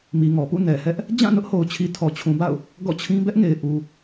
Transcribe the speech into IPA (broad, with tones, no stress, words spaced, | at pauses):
mi˨ŋɔ˨pṵ˦˨ nɛ˨hɛ˦ʔ | d͡ʑã˦˨nʊ˦ʔho˨ʊ̯t͡ɕʰi˨ tʰɔ˨t͡ɕʰũ˨ba̰˦˨ʊ̯ | ɡɔ̰˦˨t͡ɕʰĩ˦ bɛ˦ʔŋe˨ɪ̯ ʔu˨